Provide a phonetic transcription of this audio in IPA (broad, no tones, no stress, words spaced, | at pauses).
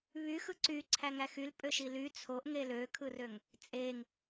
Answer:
βy xɯǀyǀʰæ ŋæxyl pʼøʃily t͡sʰoʔŋe løkʰɯrøŋ | t͡sʼeŋ